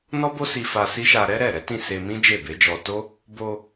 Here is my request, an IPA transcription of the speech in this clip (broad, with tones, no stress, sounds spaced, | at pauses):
n ɔ˦ b o˦ s i˧ f a˧ s i˦ ʃ a˧ ɾ ɛ˦ ɾ ɛ˦˨ ɾ ɛ˨˦ t ĩ˦˨ s e˧ m ĩ˦ d͡ʒ e˦˨ b e˨˦ d͡ʒ ɔ˧ t o˦ | b o˧